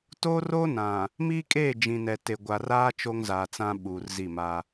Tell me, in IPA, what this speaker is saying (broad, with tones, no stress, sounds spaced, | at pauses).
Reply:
t oː˦ r oː˦ n ã˨ | m iː˦ kʼ eː˦˨ d͡ʒ ĩ˨ n ɛ˨ t e˨ ɡʷ a˨ r aː˦ t͡ʃ o˦ ŋ z aː˨ t͡s ã˦ ɓ uː˨ r z i˦˨ m a˦